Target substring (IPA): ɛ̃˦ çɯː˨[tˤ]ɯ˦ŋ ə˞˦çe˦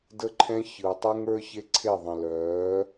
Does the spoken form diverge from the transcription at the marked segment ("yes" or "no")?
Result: no